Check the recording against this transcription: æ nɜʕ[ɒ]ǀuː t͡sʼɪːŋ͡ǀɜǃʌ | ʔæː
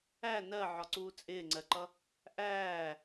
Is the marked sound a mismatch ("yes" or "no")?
no